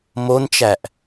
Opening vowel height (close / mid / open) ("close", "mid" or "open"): mid